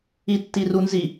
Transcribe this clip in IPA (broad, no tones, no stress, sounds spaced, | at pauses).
i tː i r u n z i